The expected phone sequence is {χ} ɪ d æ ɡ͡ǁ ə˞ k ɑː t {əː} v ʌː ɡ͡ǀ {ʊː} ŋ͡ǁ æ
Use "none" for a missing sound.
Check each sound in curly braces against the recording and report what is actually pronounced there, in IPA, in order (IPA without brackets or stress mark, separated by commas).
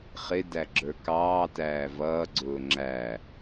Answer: χ, æː, ʊː